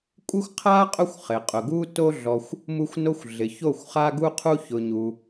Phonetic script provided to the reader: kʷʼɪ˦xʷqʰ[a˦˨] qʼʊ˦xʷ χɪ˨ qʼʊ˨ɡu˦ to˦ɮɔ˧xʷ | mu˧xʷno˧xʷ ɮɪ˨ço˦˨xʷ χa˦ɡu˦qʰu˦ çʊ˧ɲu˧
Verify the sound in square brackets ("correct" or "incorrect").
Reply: incorrect